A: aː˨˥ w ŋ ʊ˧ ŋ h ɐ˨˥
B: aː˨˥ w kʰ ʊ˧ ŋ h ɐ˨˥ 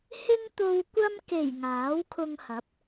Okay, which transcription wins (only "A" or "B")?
B